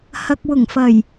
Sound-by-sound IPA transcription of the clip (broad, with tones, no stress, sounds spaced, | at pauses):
h ɐ˨ k̚ w ʊ˨˩ ŋ f ɐ˨˩ j